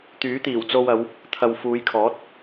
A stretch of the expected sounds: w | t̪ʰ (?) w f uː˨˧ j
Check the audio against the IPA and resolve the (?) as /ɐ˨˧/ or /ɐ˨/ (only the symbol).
ɐ˨